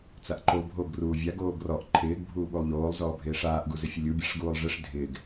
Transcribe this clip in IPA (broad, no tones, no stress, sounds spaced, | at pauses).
t͡s a ʔ ǃ o bʱ o ɡ r uː vʲ a ɡ oː ɡ r ɔ ʔ ǃʰ ɪː ɡ bʱ uː ɓ u lˠ ʎ oː lˠ z ɔː bʱ ɪː ʂ aː ʔ ɡ u z ɪ fʲ ʊ lʲ u bʲ a ʂ ɡ uː lˠ ʐ ɪ ʂ dʱ ɪː ɡ